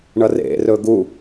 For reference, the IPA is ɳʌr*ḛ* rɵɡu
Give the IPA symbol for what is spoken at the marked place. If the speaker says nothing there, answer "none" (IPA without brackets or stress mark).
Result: ḛ